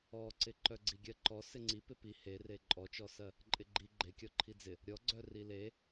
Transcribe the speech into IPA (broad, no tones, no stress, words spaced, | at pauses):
ɔǀɪ ǃœɡ͡ǀiɡʲɜǃɔ sɪŋ͡ǀi pɪpi here ǃʼɔt͡ʃɔsɜ | ǃʼɪɡ͡ǃi ɡ͡ǃekʲɔ ǃʰid͡zɪ | ɾʲɔɡ͡ǀœ rile